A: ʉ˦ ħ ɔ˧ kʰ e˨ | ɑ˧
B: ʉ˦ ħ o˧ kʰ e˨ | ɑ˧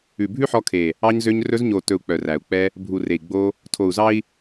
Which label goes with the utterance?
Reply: A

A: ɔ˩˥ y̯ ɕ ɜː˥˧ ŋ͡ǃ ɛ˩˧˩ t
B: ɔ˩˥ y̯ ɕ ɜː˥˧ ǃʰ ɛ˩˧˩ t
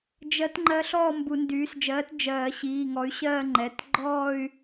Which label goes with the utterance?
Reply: A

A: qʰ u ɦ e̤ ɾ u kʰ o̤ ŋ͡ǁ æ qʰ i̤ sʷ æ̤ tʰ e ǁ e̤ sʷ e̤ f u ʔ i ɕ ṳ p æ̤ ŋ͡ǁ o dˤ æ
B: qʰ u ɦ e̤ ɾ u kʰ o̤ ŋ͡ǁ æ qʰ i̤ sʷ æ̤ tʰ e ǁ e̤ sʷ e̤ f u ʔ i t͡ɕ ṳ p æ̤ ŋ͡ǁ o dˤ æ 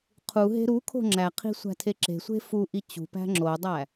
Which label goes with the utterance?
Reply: B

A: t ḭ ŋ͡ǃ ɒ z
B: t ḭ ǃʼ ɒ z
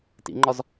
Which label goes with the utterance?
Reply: A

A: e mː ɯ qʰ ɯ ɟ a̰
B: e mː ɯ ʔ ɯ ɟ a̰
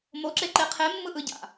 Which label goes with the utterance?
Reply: B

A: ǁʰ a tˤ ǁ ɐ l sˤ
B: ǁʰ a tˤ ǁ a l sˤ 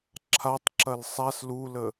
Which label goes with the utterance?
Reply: A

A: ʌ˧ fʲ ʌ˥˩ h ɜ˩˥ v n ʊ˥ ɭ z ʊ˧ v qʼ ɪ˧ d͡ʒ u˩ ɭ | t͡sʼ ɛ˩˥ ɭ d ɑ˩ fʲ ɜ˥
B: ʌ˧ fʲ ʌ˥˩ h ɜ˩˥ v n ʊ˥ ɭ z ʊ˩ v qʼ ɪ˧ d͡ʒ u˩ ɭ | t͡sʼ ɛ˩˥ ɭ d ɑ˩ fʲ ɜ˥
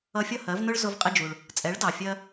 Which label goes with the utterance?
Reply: A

